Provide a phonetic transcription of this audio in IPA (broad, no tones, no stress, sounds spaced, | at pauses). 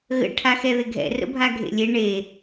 ɣ ə̰ ʈʰ a x ɛ ð ɪ ɡʱ ɛ̰ r ə̰ bʱ a ɡʱ ḛ lʲ e ɳ e